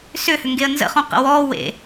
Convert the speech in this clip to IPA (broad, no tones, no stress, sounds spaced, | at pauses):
s ʏ h ʏ ŋ ɡ e ə̯ n z ə̰ χ õ q ə̰ w ɔ w ḛ